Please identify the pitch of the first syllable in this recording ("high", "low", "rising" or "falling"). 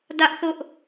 high